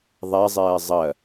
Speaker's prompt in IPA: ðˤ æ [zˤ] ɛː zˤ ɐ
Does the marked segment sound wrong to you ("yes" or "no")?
no